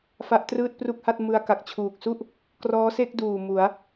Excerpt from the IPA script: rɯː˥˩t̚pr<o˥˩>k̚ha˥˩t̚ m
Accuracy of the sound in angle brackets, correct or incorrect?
incorrect